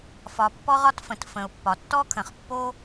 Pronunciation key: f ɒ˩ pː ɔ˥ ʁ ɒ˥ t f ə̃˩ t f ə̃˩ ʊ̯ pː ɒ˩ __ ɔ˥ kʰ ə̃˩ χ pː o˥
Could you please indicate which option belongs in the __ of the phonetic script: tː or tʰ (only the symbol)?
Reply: tː